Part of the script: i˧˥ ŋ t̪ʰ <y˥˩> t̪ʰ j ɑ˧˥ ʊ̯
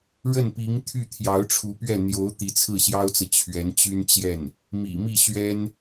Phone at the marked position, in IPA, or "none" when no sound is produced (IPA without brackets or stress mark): y˥˩